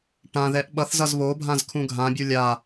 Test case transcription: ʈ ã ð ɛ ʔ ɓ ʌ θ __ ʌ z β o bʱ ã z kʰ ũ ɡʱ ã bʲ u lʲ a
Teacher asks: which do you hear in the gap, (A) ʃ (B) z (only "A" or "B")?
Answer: B